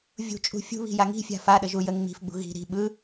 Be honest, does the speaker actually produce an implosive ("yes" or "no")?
yes